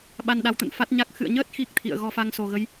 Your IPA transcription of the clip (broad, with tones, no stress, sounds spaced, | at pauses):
ɓ a˧ n ɗ a˨˦ w t̪ ə̰˧˨ n f a˦˥ t̚ ɲ a˦˥ k̚ x ɨ̰˧˨ ə̯ ɲ əː˦˥ t̚ x i˦˥ k̚ t̪ʰ ḭ˧˨ ə̯ ɣ ɔ˧ f a˧ ŋ s o˨˩ ɣ ə˨˦ j